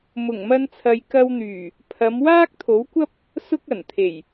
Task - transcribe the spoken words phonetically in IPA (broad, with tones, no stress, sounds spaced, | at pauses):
m ʊ˨˩ ŋ m ɐ˧ n t͡sʰ ɐ˨ j k ɐ˧ w n̪ yː˨˩ | pʰ ɐ˨˧ m w aː˥ k̚ t̪ʰ o˨˥ w kʷ ɐ˥ p̚ | s ʊ˥ k̚ ɐ˨˩ n t̪ʰ e˨˩ j